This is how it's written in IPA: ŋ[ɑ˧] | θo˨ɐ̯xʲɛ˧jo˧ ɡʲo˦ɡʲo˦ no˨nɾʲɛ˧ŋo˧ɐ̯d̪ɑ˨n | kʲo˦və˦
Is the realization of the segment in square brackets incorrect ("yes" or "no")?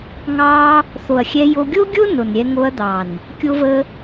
no